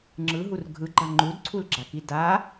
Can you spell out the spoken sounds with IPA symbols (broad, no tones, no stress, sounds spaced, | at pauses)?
ŋ͡ǁ ɯ ɦ u r ɡʱ ɯ ɡ͡ǃ a ŋ͡ǃ u d ǀʰ u l ɡ͡ǁ a k i d a